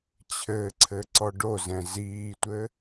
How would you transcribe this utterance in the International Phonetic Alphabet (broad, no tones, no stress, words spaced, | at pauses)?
t͡ɕʰɘǀʰɘ ǀɔɖozɛ̃ ziːtʷɘ